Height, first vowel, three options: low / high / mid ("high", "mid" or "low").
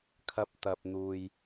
low